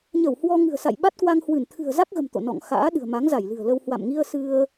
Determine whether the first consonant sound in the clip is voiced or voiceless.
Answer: voiced